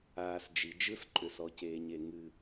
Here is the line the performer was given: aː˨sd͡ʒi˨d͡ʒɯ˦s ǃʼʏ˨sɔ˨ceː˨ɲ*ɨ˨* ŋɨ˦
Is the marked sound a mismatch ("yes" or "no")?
yes